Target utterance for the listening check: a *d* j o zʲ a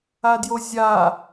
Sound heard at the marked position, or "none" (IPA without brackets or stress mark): d